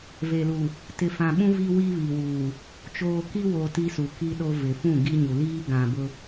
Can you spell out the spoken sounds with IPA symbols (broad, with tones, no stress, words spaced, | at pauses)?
ve˨lu˨ | tɪ˨fã˨ɓũ˦ vi˦wi˦βi˨wuː˨ | t͡ʃoː˨ki˦wo˨ ti˦su˨ki˦ɗo˦ vɪ˨fũ˦˨ɡi˦ɲu˨ liː˦ ɡã˨bʊ˦